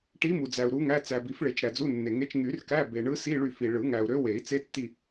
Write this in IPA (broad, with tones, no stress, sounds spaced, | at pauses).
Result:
ʈ i˧˥ m u˨ d͡z æ˨ u̯ ɾ u˧˥ ŋ æ˧˥˧ t͡s æ˨ b i˨˩˦ f ɭ e˨˩˦ t͡ʃ ɾ æ˨ d͡z u˧˥˧ nː e˨ ŋ e˧˥˧ t͡ʃ ŋ y˨˩˦ r k æ˧˥˧ b e˨ ɳ ɯ˧˥ s i˧˥˧ ɭ y˦˨ f i˨ ɭ ɯ˨˩˦ ŋ æ˨ u̯ ɾ ø˧˥ w e˨˩˦ i̯ t͡s e˧˥ tː i˦˨